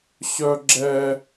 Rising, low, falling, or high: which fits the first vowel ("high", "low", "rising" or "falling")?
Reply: high